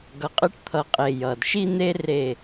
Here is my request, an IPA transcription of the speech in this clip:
ɡ ʌ˨ qʼ ɯ˧ ʈ t̪ʰ ʌ˨ qʼ e˨ j ʌ˨ d ʃ i˦ n̪ e˦ r e˦˨

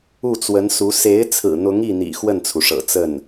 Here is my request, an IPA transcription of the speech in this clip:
u˥˩ t͡s w ə˧˥ n s u˧˥ s e˧˥ ɪ̯ t͡sʰ ɹ̩˨˩ n̪ ʊ˧˥ ŋ i˥˩ n̪ ḭ˨˩ x w ə˥˩ n t͡sʰ u˩ ʂ ɤ̰˨˩ t͡s ə˥˩ n

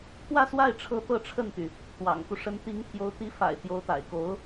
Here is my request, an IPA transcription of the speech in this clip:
t̪ʰ w ä˥˧ s w a˥˩ ɪ̯ ʈ͡ʂʰ ɤ˧˥ t̪ ɤ˥˧ ʈ͡ʂʰ ə˥˩ n t̪ y˩ | t̪ w ɑ̰˨˩ ŋ k u˦ ʂ ə˧˥ n t̪ i˧˥ ŋ t̪ʰ j o˧˥ ʊ̯ t̪ i˧˥ f a̰˨˩ ɪ̯ t̪ j o˧˥ ʊ̯ t̪ a̰˨˩ ɪ̯ k o˧˥ ʊ̯

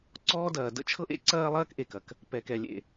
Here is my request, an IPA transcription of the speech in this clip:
ǀ ɔː˥ d ɐː˩ d ə̰˥ t͡ʃʰ ɤ˥ ʔ ḛ˥ ǀ ɐː˥ lˠ ɐː˥ k ʔ e˩ k ɐ˩ k | p ɛ˩ k ɛ˩ lʲ ḛ˩

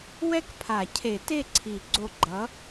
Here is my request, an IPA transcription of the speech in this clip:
w ɛ˥˧ k pʰ a˨˩˦ cʰ e˨˩˦ t e˥˩ ǀʰ i˨˩˦ ɡ͡ǀ o˧˩ ɡ͡ǃ ʌ˨˥

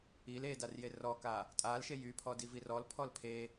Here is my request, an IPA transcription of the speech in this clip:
i l e d a r j e r ɔ k a | tʼ a l ʃ e j y pʰ ɔ d i v i r ɔ l pʰ ɔ l pʰ e

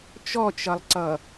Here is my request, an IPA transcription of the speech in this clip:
t͡ʃ ɔ t͡ʃ ʌ lˠ ǀ ʌ

